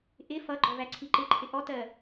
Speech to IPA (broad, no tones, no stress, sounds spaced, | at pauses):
ʔ ɪ f ʌ ɡ͡ǃ ɔ v æ ǀʰ i ǃ ɪ ǃʰ ɪ ʔ ɔ t ɜ